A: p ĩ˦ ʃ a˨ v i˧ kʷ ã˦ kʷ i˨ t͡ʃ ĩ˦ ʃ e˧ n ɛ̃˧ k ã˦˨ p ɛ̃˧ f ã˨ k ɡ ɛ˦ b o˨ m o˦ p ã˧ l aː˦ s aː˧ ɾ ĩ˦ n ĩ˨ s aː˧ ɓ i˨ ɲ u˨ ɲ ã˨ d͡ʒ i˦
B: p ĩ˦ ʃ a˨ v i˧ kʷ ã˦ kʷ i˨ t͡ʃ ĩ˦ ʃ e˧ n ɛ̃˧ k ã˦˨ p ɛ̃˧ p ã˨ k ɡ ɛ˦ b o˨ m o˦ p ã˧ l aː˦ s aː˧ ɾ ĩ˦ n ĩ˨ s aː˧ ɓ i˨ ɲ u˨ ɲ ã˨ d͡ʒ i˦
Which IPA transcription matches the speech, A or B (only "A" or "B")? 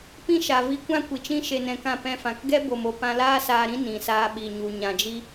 A